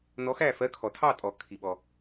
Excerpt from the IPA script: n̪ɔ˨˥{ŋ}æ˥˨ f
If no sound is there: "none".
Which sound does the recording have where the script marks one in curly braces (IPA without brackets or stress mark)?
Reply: x